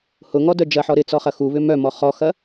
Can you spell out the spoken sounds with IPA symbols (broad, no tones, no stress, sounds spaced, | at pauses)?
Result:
h ʊ ŋ ɔ d œ d͡ʒ ɐ ħ ɔ ɾ ɪ t͡s ɔ χ ɐ x u β ʏ m œ m ɔ χ ɔ x ɐ